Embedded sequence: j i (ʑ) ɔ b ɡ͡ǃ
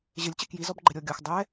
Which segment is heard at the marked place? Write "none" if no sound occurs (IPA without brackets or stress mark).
z